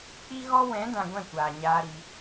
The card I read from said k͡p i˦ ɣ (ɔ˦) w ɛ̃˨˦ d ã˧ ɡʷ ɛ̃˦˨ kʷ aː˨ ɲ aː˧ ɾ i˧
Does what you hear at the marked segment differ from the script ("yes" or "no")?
no